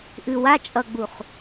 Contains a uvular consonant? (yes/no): yes